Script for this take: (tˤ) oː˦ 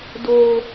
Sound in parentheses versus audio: incorrect: d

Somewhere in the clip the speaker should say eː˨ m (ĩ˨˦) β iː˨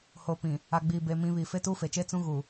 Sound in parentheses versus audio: correct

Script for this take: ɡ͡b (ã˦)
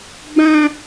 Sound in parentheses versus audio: correct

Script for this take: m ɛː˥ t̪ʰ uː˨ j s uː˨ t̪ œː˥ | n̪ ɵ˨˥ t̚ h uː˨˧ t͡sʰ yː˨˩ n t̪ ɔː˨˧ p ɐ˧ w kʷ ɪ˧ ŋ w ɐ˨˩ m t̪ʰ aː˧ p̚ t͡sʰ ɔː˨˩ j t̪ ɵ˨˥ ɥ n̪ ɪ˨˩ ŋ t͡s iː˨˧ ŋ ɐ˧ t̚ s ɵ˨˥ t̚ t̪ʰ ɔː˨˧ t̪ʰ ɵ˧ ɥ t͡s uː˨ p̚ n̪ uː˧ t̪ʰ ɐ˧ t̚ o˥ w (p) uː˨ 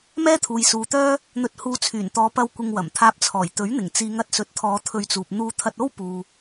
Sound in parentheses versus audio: correct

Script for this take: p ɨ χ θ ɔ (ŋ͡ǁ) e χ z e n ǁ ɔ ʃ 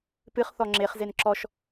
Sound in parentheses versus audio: correct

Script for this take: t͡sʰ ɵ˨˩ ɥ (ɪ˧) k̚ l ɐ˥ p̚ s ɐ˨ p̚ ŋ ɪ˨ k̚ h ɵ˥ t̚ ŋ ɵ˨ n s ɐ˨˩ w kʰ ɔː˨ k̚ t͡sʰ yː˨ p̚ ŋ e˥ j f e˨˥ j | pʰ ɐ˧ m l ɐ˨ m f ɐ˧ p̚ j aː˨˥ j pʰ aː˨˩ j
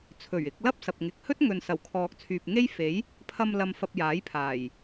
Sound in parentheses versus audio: correct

